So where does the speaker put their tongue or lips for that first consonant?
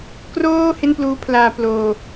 velum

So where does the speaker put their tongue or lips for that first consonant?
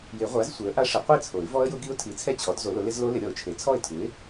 palate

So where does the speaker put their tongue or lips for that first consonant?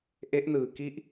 throat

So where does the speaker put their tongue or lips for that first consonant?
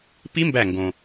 lips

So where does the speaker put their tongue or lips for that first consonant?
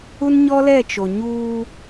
tongue tip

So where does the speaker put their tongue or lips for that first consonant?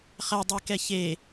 uvula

